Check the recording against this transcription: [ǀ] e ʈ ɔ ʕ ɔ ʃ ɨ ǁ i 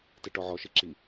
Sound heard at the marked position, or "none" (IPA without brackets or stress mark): t